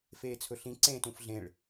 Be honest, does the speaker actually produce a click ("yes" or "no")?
yes